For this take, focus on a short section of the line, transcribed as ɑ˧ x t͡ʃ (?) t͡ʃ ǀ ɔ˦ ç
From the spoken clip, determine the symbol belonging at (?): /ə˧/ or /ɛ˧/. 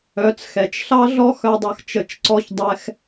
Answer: ə˧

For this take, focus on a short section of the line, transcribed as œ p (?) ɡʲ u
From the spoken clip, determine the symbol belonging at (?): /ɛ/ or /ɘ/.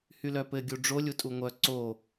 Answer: ɘ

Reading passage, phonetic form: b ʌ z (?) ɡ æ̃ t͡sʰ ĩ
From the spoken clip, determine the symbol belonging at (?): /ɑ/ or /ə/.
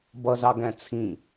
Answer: ɑ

